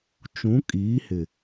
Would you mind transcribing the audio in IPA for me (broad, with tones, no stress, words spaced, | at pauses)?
t͡ʃũ˨˦kʼiː˨˦hɪ˨